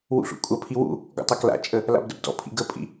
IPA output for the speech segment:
w ṵ ɬ ṵ kʷʼ ɐ pʰ i w ṵ | ɡ ɔ̰ tˤ a k l a̰ t͡ʃʼ ə | l a̰ b d ə b d ɔ̰ pʰ ḭ ɡ ə pʼ ḭ

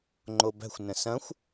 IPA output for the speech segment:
ŋ͡ǃ o b æ̤ xʷ n ə̃ s ɐ̃ xʷ

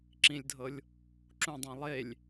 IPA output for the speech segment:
ǁ ĩ lʲ dʱ ɤ lʲ | ǁ ũ dˤ ĩ lˠ e lʲ

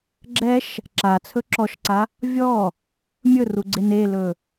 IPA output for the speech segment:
ɡ͡ǁ ɛ ʃ | ǁ a t͡sʰ ɵ ǁ ɔ ʃ ǀ a | vʲ ɔ | mʲ ɵ r u ɡ͡ǀ e n e l ɵ

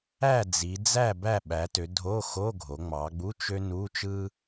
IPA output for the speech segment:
æ˥˨ d͡z i˩˧ d͡z æ˥˨ b æ˥˨ ɓ æ˩˧ t ø˩˧ dʱ o˧˥˧ x o˧˥˧ ɡʱ o˩˧ ŋ͡m ɑ˩˧ ɡ͡b u˧˥˧ t͡ʃ ø˥ n u˧˥˧ t͡ʃ ɯ˥

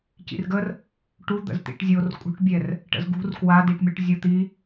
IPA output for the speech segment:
c ḭ r ɡ ə r | ʈ u d̪ ə̰ z t̪ ḭ ʈ zʲ o r kʼ ṳ ʈ bʲ ɛ r | ʈ ə̰ z ɡ ṳ r k w a d i ʈ mʲ o ʈ zʲ o t̪ i

